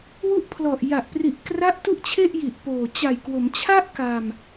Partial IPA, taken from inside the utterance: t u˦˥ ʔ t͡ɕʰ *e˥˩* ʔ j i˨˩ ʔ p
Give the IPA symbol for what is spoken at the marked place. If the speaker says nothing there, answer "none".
e˥˩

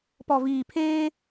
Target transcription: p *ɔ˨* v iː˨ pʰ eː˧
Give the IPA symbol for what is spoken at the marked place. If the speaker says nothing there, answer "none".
ɔ˨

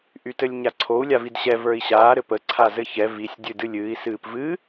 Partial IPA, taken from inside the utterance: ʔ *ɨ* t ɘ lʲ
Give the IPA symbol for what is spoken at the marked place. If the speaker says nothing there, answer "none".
y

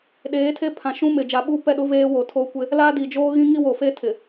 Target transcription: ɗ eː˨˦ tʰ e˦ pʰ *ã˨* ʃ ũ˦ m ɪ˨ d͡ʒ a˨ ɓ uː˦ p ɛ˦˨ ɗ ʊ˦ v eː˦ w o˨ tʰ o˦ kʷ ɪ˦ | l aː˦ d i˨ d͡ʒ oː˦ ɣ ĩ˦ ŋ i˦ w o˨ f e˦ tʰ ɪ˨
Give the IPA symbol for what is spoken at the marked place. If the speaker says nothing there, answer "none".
ã˨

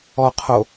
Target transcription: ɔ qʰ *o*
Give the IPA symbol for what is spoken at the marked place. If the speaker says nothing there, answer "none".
o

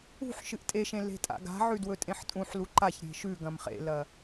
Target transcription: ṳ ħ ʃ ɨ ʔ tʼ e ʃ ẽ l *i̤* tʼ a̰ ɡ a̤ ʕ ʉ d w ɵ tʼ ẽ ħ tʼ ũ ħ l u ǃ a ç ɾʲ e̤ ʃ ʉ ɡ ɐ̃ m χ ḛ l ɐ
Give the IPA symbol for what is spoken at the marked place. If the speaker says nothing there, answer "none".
e̤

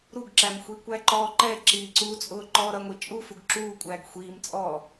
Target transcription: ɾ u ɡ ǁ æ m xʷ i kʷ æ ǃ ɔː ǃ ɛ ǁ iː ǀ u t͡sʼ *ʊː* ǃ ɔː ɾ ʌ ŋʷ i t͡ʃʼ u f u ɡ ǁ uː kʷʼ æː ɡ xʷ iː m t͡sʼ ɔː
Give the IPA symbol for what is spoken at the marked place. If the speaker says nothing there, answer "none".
ʊː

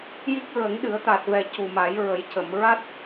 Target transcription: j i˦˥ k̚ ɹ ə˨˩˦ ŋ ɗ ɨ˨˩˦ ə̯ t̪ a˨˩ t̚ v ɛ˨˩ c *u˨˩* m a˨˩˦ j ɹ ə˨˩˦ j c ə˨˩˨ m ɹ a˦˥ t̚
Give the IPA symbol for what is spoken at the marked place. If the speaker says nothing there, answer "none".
u˨˩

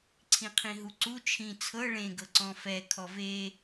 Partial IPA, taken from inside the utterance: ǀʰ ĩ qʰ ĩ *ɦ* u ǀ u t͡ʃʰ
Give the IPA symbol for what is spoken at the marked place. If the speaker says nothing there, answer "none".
ɦ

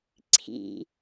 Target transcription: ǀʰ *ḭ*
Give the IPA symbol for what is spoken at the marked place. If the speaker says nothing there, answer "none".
ḭ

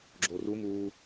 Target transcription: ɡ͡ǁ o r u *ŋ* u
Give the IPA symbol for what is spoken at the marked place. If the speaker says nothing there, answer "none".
ŋ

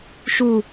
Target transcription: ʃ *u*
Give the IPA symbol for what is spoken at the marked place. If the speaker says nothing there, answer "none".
u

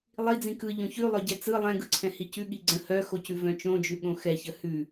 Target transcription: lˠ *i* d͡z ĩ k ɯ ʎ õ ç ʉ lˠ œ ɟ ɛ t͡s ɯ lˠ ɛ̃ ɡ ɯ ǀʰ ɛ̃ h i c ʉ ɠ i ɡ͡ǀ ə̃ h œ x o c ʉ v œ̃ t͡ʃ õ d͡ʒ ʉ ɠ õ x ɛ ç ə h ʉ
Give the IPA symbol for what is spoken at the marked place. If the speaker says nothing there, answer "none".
i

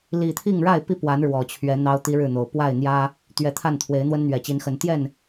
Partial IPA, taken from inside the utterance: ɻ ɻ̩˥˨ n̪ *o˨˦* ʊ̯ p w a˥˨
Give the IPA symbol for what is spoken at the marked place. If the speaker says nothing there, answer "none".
o˨˩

